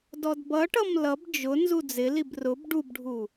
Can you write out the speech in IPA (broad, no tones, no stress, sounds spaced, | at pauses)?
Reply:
d ɔ d b ʌ ʈ ʌ m l ʌ b d͡ʒ ʊ n z u d͡z ɪ l i b r ʊ b ɖ u b ɖʱ u